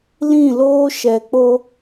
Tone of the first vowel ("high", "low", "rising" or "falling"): falling